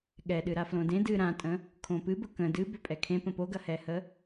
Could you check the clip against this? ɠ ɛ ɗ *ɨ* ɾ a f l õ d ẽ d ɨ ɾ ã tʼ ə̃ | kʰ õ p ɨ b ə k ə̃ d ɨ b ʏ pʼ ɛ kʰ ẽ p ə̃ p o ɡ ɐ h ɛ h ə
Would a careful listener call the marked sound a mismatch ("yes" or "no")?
no